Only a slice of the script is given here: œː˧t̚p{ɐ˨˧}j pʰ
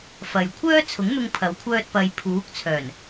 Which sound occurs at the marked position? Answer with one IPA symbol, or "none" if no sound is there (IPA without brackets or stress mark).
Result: ɐ˨˧